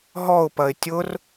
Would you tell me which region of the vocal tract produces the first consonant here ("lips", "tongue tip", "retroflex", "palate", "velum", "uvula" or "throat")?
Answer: throat